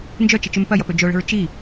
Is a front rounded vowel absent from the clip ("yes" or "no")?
no